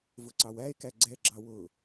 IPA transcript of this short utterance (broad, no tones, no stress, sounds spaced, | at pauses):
v ʊ ǀ ɑ w æ e̯ k æ ɡ͡ǀ ɛ ɡ͡ǁ ɑ w ʊ